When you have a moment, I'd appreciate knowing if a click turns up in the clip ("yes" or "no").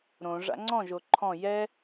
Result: yes